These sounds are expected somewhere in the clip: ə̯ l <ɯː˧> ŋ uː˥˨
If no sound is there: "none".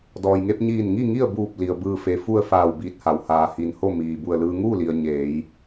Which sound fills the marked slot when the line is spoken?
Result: ɯː˧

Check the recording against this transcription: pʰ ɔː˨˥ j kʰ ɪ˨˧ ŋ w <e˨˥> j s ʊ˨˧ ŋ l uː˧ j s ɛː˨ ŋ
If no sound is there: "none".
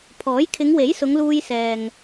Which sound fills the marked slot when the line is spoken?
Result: e˨˥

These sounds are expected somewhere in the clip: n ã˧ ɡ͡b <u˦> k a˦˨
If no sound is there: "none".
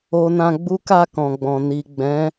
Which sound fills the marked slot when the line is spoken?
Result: u˦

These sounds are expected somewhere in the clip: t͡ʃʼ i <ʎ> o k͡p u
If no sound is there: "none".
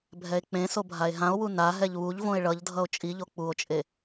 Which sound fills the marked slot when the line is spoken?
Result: ʎ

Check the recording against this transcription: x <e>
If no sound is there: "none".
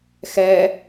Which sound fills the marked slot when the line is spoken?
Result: ɛ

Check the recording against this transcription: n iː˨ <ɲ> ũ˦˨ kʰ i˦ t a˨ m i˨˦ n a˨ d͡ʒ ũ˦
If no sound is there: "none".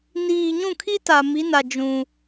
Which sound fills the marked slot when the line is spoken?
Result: ɲ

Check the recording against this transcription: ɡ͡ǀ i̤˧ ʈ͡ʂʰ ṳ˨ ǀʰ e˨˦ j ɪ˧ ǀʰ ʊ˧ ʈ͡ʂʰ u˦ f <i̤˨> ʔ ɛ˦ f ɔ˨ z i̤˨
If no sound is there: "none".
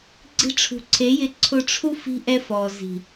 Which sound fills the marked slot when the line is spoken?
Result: i̤˦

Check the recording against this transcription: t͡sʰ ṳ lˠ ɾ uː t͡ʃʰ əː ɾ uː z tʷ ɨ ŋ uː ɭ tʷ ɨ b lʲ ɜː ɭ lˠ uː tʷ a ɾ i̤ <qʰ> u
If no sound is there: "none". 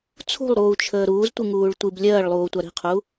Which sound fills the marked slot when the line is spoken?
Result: qʰ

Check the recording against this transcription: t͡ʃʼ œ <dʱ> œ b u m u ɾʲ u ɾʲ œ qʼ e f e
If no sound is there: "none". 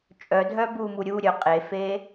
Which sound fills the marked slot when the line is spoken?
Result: dʱ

